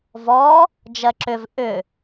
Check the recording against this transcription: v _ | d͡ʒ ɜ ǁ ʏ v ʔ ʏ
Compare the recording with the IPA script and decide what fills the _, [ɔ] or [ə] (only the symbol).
ɔ